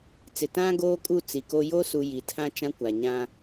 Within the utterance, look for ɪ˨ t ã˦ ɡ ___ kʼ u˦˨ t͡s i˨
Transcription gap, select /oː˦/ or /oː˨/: oː˦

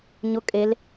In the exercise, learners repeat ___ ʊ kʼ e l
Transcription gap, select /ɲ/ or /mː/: ɲ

